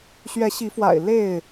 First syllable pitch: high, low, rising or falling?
rising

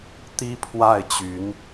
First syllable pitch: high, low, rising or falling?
high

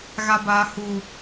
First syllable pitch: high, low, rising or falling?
low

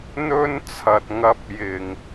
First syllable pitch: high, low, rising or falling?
high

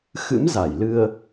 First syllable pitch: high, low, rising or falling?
rising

